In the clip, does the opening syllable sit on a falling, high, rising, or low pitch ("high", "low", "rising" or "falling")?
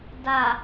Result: low